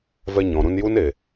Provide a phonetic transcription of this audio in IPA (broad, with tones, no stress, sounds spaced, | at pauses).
v ɛ˧ ɲ ɔ̃˨ ɾ ũ˧ n j u˦ n e˨